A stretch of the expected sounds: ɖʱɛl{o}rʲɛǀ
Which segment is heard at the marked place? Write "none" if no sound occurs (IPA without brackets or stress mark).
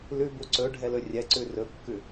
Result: ɵ